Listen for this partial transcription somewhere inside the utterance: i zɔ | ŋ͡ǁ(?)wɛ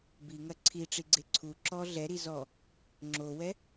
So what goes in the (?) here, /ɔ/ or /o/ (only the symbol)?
o